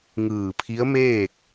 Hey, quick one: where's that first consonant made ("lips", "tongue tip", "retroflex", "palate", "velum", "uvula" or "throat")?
velum